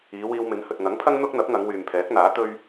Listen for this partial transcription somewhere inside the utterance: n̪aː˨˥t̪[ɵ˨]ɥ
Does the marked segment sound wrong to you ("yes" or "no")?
yes